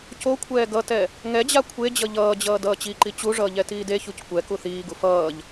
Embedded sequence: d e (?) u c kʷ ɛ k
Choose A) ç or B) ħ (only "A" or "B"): A